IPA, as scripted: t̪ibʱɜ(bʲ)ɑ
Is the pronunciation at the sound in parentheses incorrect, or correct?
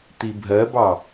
incorrect